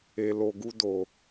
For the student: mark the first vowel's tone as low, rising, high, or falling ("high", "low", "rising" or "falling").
low